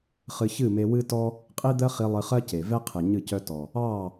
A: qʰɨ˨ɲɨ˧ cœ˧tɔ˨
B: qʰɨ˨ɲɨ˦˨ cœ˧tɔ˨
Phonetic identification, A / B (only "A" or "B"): B